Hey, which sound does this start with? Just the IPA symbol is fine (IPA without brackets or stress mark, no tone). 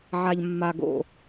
ʕ